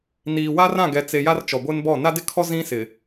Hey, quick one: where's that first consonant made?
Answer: tongue tip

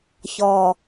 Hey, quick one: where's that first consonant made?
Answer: palate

